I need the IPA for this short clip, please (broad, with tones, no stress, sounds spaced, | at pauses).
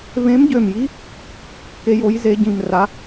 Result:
v ẽ˧˥ m ɟ ø˧˩ m j i˧˥ | k e˧˥ j o˧˥ j z e˧˥ ɟ ĩ˧˩ m r a˧˥